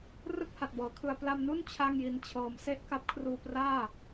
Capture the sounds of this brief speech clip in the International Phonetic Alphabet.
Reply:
r ɯ˥˩ k̚ h a˨˩ t̚ b ɤː˩˦ kʰ ɯ˧ a̯ p l a˧ m n u˥˩ n t͡ɕʰ a˥˩ ŋ j i˧ n t͡ɕʰ ɤː˧ m s e˥˩ ʔ k a˦˥ p̚ kʰ r uː˧ p r aː˥˩

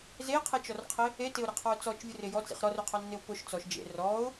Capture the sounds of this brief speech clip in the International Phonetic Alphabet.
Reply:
z e qʰ e t͡ʃ ɔ r qʰ ɪ | e t ɪ ʊ̯ ɾ ɪ qʰ ɔ ʊ̯ t͡s ɔ t͡ʃ vʲ ʊ r ɪ j ɔ t͡s ḭ χ ɾ ɔ r ʊ qʰ ɔ nː ɪ ʊ̯ p ʊ ʃ t͡s ɔ ʃ d͡ʒ ḛ r ɔ ʊ̯

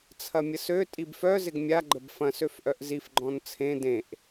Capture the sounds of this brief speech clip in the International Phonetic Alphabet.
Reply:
t͡sʰ ɐ mʲ ə s ø tʼ i b f œ z ɪ ɡ mʲ a ɡ͡ǃ ə b f ɐ̃ s ø f ʔ œ ʔ z i f ɡ͡ǃ ɔ̃ n t͡sʰ ẽ d ẽ ʔ

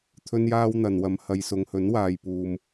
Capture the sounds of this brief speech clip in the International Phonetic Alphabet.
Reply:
t̪ʰ ɵ˥ n j aː˥ w n̪ ɐ˨ n w ɐ˧ m h ɐ˧ j s ʊ˨˧ ŋ h ɵ˨˥ n w aː˨ j p uː˨ m

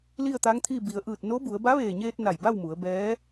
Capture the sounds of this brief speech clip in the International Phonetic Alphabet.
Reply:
l i˥˨ ə̯ t̪ a˧˥ ŋ t̪ʰ i˥˨ b i˩ ə̯ ʔ ɯː˧˩ t̚ n o˧˥ b u˩˧ ə̯ b a˧˥ ʋ eː˧˩ ɲ eː˧ t̚ n a˧˩ j b a˥˨ w m u˩˧ ə̯ b ɛː˧˥

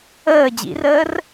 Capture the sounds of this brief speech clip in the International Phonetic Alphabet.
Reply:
əː d͡ʑ ḭ r əː r

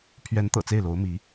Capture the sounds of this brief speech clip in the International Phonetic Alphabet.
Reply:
pʰ ɥ ɛ˧˥ n t̪ ɤ̰˨˩ t͡s e˥˩ ɪ̯ l o˧˥ ʊ̯ m i˧˥

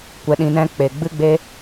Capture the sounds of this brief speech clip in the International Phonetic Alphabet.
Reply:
kʷ ɛ˧ ɗ ĩ˧ n ɛ̃˦ k͡p e˨ ɡ͡b ɨ˦ ɡ͡b e˦

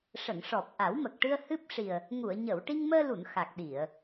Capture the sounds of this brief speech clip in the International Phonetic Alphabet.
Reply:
ʂ ə˨˩˨ ŋ ʂ ɔ˨˩ p̚ ʔ a˨˩˦ w m ə˨˩ k̚ ʈ ɨ˧ ə̯ h ɨ˦˥ p̚ ʂ i˨˩ ə̯ | ŋ u˨˩˨ ə̯ ɲ ə˨˩˨ w ʈ i˧ ŋ m əː˧ l u˨˩˨ n x a˨˩ k̚ ɗ i˨˩˨ ə̯

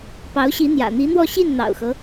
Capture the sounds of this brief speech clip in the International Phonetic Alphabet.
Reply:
p ɑ˧˥ ʊ̯ ɕ i˧˥ n̪ j ä̰˨˩ n̪ i˧˥ n̪ w ɔ˥˧ ɕ i˥˩ n n̪ ɑ̰˨˩ ʊ̯ x ɤ˦

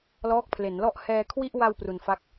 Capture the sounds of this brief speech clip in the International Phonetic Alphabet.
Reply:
l ɔː˦˥ k̚ pʰ l e˩˦ n l ɔ˥˩ ʔ h ɛː˧ kʰ w i˥˩ ʔ w a˧ w p r u˧ n f a˥˩ k̚

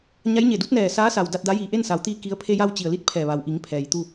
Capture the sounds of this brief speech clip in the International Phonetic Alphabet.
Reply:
ɲ a˧˥ j ɲ e˧˩ d u˧˥ t̚ n ɛː˧˩ s aː˧˥ s a˩ w d a˧ t̚ d a˧˥ j iː˧˩ ʔ e˥˨ n s a˩˧ w t̪ iː˧ k i˧˥ ə̯ pʰ e˧ j a˧ w t͡ɕ i˩ ə̯ l i˧˥ t̚ pʰ ɛː˧˩ ʋ a˩ w ʔ i˩˧ ŋ pʰ ɛː˩ j t̪ u˥˨

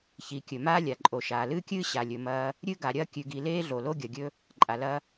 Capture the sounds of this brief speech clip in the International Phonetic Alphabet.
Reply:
ç i˩ kʲ ɵ˩ m aː˥ lʲ a˩ ǃʼ o˩ ʃ aː˩ l ɨː˥ kʲ ɨː˥ ɕ a˩ lʲ ɵ˩ m ɐː˧ | ɾʲ ɨ˥ ɡ a˩ ɾʲ ɐː˥ kʲ ʉ˩ ɡ i˩ l eː˥ ɮ o˩ l o˥ ɡʲ ɐ˩ ɡʲ ɵ˧ | ǃʼ a˩ l ɐ˧

